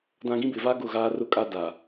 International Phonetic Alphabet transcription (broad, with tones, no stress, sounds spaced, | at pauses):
d ã˦ ɡ ĩ˦ b ɪ˨ v aː˦ ɡ ʊ˦˨ ɣ aː˦ r ʊ˦ kʼ a˦ d a˨